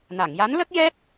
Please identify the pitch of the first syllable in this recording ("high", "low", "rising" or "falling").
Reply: low